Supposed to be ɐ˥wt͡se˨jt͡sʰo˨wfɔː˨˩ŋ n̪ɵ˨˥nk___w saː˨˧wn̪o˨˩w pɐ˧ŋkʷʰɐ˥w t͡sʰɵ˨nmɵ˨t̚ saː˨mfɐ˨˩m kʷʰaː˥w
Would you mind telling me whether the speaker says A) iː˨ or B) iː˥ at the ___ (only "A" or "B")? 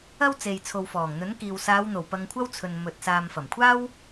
A